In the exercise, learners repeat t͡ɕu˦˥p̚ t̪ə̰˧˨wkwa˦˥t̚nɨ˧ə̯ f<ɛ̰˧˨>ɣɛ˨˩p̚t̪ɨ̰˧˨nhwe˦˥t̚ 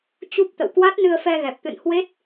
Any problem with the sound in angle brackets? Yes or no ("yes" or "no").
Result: yes